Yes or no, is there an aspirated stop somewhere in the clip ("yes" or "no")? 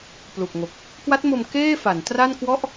no